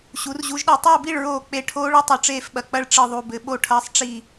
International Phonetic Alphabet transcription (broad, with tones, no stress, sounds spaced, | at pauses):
ɕ u˩˧ r ʑ u˩˧ ʒ ɗ ɛ˨˩ tˤ ɐː˦˨ b i˦˨ ɭ ɹ oː˨˩ k͡p e˨˩ ʈʰ oː˦ ɭ ɨ˦ tˤ o˨˩ ʈ͡ʂ eː˦˨ f ɓ ɐ˨˩ k͡p ɐ˦ ɭ ʈ͡ʂ ɨ˨˩ ðˤ u˨˩ b ɘ˩˧ ɓ o˦˨ ʈʰ ɐː˦ sˤ ʈ͡ʂ i˦˨